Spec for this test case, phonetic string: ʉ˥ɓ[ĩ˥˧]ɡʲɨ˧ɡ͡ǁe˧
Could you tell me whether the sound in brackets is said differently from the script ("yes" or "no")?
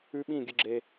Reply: no